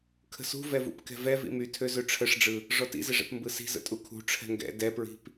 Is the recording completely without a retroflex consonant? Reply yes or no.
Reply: no